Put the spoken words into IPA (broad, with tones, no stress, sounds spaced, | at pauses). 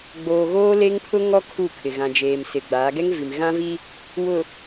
ɡ͡b oː˨ ɣ oː˦ l e˦ ŋ pʰ ʊ˦ ŋ ɔ˦ kʰ u˦˨ kʰ ɪ˨ ɣ ã˨ d͡ʒ eː˨ m s ɪ˨ ɡ͡b aː˨˦ ɡ ɛ˦ ŋ v i˨ m ɣ ã˦ v i˦ | w ʊ˨